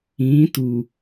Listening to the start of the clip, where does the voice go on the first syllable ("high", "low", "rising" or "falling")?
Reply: rising